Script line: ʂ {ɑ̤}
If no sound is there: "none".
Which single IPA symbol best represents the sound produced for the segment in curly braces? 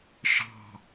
ɑ̤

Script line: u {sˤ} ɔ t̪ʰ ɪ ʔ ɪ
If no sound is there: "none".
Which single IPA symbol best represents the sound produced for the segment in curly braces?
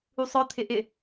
sˤ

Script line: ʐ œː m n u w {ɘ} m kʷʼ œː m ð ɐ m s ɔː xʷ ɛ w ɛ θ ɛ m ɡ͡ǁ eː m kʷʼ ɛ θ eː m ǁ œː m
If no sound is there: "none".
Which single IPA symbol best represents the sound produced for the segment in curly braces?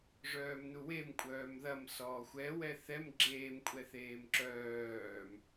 e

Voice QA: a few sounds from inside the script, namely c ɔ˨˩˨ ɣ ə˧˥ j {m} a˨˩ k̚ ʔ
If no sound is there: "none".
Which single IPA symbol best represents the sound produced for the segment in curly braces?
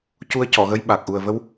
ɓ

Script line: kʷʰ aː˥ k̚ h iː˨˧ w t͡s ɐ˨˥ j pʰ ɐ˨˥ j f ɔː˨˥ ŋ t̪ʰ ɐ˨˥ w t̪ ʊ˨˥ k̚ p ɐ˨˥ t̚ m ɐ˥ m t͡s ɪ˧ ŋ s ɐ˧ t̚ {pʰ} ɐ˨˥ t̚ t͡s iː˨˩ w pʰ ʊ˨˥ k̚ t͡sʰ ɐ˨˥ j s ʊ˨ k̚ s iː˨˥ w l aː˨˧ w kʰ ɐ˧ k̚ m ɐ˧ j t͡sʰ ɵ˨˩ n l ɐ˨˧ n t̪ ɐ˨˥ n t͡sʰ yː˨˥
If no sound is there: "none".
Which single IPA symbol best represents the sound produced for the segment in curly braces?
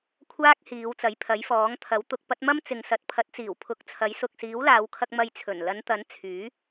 pʰ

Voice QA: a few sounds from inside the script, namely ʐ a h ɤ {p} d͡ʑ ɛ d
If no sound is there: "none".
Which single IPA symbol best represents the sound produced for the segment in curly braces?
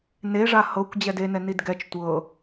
kʷ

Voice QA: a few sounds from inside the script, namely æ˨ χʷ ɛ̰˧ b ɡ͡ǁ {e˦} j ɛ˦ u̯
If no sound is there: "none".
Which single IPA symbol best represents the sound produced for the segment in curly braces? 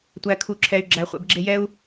e˦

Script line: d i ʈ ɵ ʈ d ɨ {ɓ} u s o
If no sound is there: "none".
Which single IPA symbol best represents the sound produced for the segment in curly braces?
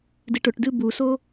b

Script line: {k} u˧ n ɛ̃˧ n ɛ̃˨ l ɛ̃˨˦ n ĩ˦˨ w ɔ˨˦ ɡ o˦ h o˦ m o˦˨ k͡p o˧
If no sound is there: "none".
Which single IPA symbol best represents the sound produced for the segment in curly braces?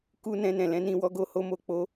k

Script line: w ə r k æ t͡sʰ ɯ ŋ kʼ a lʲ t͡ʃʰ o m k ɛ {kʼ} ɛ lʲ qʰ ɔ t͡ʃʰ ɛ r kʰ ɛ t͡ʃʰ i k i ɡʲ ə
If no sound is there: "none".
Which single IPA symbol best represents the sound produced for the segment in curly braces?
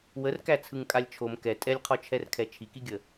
tʼ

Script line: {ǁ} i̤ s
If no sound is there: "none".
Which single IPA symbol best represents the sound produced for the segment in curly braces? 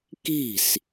k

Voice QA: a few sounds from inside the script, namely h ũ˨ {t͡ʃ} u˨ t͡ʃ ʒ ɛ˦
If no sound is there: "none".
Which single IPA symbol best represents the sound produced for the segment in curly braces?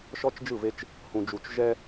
d͡ʒ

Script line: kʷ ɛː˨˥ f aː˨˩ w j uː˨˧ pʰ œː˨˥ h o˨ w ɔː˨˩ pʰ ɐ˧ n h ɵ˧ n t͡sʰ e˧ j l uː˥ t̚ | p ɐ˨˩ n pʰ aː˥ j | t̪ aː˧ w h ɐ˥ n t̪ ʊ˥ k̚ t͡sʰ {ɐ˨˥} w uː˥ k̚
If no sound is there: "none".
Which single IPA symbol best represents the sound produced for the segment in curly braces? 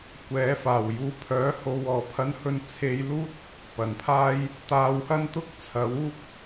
ɐ˨˥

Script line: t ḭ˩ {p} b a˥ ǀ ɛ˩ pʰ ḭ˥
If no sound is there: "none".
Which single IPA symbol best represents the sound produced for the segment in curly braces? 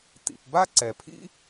p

